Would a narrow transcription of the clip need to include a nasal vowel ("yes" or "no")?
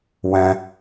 yes